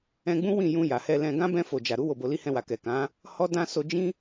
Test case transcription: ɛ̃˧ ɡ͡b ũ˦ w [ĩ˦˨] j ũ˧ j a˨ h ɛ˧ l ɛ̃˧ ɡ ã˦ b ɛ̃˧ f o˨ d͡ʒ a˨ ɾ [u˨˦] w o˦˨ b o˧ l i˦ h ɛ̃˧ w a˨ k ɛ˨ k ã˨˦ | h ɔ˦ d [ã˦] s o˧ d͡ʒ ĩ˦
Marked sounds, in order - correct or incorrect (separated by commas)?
correct, correct, correct